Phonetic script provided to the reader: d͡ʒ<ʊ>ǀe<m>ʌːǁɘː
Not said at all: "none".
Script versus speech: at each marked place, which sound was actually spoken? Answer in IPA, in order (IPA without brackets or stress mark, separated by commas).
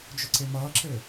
ʊ, m